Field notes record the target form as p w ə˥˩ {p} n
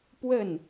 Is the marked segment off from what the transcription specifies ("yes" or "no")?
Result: yes